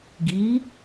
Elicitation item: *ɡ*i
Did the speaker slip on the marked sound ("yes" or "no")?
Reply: no